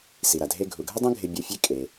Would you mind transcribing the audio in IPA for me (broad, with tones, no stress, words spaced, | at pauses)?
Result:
si˩ɾa˩dʱe˧ ɡʱu˩ɡʱə˥dˤə̃˥ ɡʱɪ˧ bʲu˧fʲe˥ kʼe˩